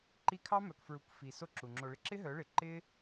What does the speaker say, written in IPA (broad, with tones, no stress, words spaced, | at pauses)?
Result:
ǃi˧kʰɑ˦ mœ˨kfɹu˨k fi˨ so˦ǁu˨ŋ͡ǁo˧ɭɪ˦ ǁɪ˦ɦœ˨˦ɭɪ˨ ǃɪ˦